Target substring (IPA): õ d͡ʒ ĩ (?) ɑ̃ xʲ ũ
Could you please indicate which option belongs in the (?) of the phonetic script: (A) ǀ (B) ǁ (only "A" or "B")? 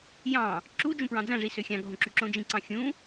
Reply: A